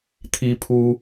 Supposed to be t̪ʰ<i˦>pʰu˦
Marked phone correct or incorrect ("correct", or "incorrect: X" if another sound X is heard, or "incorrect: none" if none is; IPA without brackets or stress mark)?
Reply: correct